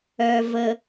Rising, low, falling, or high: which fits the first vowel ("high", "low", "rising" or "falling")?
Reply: low